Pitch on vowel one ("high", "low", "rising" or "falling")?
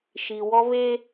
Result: low